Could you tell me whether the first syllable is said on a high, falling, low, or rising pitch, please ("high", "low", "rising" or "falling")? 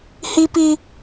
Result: high